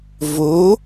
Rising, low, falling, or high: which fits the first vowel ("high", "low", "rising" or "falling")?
rising